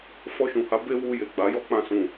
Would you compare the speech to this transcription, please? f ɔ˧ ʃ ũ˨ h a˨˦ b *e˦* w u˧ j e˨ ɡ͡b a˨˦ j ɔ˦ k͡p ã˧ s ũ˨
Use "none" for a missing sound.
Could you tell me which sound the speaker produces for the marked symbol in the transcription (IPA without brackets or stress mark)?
e˦